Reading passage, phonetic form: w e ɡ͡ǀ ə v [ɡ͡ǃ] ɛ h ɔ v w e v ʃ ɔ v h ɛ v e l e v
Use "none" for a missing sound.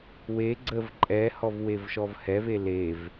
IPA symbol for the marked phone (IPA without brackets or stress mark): ǃʼ